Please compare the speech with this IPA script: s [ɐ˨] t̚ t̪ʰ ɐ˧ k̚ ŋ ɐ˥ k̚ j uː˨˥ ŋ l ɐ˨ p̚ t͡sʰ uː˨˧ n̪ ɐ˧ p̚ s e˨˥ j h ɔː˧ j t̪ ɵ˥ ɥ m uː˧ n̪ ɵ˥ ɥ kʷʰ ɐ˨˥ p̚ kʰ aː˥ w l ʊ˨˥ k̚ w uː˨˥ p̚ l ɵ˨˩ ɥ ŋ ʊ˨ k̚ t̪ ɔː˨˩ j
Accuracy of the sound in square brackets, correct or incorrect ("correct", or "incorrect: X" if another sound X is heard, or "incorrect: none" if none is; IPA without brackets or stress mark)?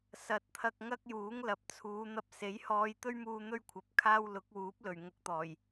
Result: incorrect: ɐ˨˥